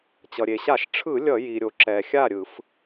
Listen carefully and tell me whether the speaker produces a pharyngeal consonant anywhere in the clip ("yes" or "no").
no